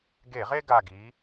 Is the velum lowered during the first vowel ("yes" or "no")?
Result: no